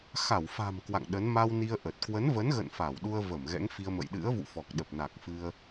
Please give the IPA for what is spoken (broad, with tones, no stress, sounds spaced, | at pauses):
x a˧˩ w f a̤˨˩ m k w a̰˧˨ ŋ ɗ ə˨˦ n m a˧ w n i˧ ə̯ ʔ ə˨˩ t̚ k w ə˨˦ n v ə˨˦ n ɣ ə̰˧˨ n f a˧˩ w ɗ u˧ ə̯ v ə˧˩ m ɣ ɛ̰˧˥ ŋ f i˧ ə̯ m ə̰˧˨ j ɗ ɨ̰˧˥ ə̯ v ṵ˧˨ f ɔ˨˩ k̚ ɗ ə˨˩ p̚ n a˨˩ k̚ f ɨ˧ ə̯